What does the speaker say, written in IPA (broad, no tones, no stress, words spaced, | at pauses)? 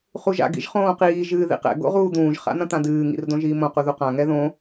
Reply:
χuʒa̰ ɡḭʒχõːqiː ʒɨːðḭqɛ̰ ɡo̰ʁuːd̪ũːʒ χa̰n̪ɐ̃t̪ãdɨː ŋḭrdõʒiːmõ quðuqã ŋɛðõ